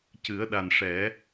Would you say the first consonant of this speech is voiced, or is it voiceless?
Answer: voiceless